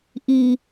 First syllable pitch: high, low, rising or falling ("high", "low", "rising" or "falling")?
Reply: low